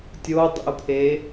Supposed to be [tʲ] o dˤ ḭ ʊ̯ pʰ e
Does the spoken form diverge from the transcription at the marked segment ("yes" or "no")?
no